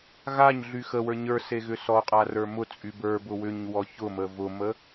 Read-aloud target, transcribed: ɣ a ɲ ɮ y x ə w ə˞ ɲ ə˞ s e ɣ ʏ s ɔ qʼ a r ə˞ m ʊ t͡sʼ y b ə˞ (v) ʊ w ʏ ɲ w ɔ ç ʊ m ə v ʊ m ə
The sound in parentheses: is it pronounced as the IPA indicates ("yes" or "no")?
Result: no